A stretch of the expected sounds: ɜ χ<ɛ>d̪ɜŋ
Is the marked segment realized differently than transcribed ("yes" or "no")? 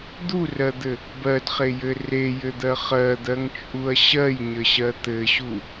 yes